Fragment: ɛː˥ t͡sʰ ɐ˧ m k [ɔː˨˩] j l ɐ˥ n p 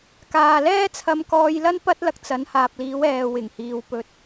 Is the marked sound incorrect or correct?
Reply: incorrect